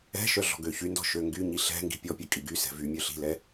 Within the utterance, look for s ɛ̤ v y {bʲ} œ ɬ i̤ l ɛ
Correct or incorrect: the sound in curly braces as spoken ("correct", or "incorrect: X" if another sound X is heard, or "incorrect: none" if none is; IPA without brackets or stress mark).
incorrect: mʲ